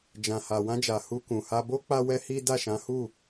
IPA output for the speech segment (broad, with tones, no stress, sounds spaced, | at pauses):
d͡ʒ ã˨ h a˨ w ã˧ d͡ʒ a˨ h u˧ k ũ˨ h a˧ b o˦ k͡p a˦ w ɛ˦ h i˦ d a˦˨ ʃ ã˨˦ h u˦˨